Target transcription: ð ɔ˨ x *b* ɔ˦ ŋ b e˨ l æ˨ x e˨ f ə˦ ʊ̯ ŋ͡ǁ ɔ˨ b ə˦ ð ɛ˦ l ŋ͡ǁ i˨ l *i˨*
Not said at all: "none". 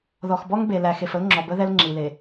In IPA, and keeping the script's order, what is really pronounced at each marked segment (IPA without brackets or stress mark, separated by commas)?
b, e˨